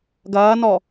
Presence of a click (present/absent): absent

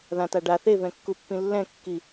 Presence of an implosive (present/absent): absent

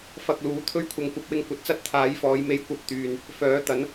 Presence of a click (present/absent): absent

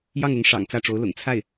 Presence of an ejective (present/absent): absent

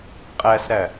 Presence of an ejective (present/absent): present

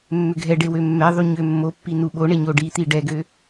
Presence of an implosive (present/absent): present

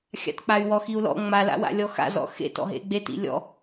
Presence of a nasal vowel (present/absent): absent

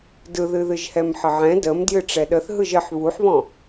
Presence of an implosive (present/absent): present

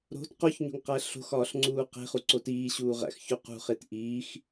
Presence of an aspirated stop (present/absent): absent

